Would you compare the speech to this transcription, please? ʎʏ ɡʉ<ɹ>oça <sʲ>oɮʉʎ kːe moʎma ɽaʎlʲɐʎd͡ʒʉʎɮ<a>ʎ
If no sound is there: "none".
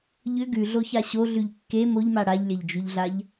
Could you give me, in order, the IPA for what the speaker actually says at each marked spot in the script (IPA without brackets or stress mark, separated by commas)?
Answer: ɮ, ɕ, a